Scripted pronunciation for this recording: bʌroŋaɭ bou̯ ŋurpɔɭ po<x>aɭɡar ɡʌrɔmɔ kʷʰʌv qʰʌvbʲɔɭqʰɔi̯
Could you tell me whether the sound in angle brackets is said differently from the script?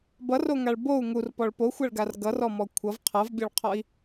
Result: yes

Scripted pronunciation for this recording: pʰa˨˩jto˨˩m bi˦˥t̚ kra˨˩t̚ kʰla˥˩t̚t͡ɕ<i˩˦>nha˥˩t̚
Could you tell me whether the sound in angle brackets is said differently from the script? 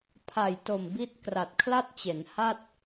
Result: yes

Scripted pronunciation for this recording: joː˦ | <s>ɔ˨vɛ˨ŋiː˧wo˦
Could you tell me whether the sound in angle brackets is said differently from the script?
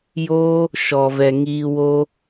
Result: yes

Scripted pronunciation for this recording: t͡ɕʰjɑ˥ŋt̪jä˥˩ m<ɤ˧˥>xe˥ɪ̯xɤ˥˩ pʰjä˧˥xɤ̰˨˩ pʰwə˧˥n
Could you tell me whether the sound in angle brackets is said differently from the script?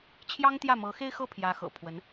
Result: no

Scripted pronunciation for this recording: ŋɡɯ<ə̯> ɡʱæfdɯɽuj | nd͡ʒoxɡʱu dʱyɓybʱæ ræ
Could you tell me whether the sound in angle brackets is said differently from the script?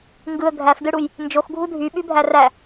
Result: no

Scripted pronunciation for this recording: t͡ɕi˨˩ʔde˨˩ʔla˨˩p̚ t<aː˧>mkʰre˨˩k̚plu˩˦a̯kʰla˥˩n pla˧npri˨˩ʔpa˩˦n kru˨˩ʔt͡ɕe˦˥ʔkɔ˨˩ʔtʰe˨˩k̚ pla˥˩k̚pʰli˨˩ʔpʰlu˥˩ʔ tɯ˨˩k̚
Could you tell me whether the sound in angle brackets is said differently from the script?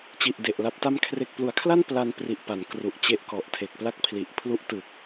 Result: yes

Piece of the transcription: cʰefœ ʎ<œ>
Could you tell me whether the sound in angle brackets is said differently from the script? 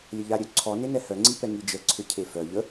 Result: yes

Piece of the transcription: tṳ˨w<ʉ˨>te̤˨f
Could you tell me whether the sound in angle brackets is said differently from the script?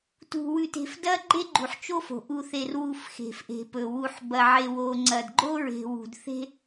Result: no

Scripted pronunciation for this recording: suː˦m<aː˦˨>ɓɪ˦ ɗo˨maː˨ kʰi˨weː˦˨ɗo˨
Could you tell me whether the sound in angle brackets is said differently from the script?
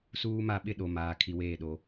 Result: yes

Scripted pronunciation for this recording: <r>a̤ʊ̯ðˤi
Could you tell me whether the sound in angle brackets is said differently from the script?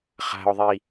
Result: yes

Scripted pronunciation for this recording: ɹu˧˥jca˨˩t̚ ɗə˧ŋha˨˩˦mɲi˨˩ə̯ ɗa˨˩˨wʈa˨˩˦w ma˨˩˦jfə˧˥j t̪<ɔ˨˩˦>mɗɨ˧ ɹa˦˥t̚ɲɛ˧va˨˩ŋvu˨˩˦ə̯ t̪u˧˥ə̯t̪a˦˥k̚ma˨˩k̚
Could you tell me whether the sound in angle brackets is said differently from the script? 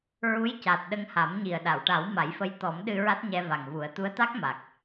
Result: no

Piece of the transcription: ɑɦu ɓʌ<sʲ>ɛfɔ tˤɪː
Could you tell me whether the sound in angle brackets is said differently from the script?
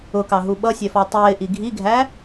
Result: no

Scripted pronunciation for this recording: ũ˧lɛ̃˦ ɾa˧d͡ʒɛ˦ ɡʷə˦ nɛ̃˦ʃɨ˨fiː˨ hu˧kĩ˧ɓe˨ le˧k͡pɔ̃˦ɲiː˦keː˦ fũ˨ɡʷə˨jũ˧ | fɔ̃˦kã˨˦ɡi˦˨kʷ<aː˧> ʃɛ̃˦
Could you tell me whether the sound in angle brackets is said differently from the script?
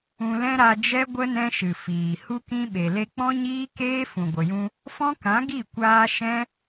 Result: no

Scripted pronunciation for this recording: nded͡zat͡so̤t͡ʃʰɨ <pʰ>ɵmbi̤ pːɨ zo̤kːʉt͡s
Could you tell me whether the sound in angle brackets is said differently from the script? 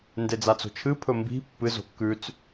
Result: no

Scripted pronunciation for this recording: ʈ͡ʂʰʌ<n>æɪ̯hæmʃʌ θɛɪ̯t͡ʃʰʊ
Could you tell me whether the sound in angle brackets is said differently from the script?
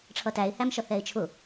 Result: yes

